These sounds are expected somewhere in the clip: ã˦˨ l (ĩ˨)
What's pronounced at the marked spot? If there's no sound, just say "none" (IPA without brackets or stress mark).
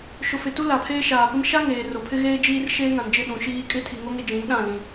ĩ˦